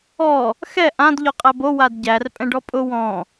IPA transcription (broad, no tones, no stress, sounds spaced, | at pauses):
ɔ | x ɛ ʔ ã d ʎ ɔ qʼ æ b o w a d ɟ æ r pʼ ɛ̃ ɖ ɔ pʼ ʊ w ɔ̃